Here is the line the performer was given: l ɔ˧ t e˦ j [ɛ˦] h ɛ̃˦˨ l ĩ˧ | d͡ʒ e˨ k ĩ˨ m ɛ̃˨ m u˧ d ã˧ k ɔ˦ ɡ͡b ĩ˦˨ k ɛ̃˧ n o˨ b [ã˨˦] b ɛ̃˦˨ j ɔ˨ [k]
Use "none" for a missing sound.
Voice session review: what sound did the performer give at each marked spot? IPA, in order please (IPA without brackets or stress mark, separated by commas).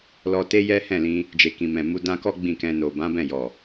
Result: ɛ˦, ã˨˦, none